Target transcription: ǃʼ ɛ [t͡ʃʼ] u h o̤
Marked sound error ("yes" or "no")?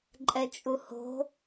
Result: no